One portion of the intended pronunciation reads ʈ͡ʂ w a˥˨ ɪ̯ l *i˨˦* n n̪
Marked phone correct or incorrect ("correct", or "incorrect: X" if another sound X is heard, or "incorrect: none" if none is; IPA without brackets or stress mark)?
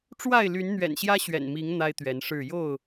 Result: incorrect: y˨˦